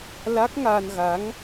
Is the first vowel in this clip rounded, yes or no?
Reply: no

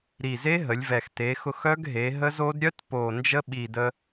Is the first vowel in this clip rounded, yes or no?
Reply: no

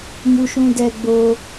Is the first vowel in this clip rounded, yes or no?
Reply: yes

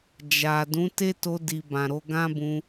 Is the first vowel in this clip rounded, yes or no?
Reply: no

